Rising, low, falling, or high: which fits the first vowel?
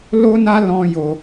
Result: high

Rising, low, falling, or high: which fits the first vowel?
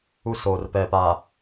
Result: high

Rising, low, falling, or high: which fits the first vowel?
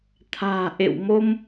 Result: low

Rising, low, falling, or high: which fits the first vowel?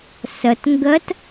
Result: low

